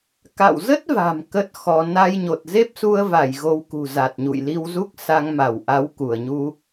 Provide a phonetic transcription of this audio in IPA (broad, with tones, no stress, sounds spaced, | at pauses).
k a̰˧˨ w z ə˦˥ t̚ v a̤˨˩ m k ə˦˥ t̚ x ɔ˧ n a˧ j ɲ o˨˩ t̚ z e˦˥ p̚ s u˧ ə̯ v a˧˩ j ɣ o˧ w k ṳ˨˩ z a˨˩ t̚ ɲ ṵ˧˨ j l i˧ w z u˦˥ k̚ s a˧ ŋ m a˧˩ w ʔ a˨˦ w k u˧˩ ə̯ ɲ u˧